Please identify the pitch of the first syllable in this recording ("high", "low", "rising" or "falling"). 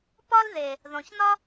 high